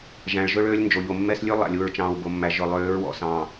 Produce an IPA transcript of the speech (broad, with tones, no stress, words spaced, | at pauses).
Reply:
ʒæ̃˨ɭʒɵ˦ɭøː˦lʲ nd͡ʒo˨ʎo˨mːɛ˦s lʲʉ˦lˠæ̰˨lʲu˨ɹ t͡ʃɑ̃ː˨wbo˨mːæ˨ ʒɵ˨ lˠøː˨˦ɹwɔ̰˨sɑ̃ː˨